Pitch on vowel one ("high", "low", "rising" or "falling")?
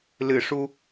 low